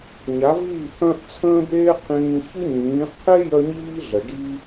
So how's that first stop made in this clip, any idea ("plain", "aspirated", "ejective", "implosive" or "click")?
aspirated